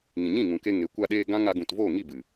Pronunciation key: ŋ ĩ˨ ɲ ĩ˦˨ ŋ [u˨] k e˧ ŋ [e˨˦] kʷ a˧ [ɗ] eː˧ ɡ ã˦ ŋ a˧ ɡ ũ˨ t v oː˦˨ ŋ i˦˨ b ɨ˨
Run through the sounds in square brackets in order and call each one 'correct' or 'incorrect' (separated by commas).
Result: incorrect, correct, correct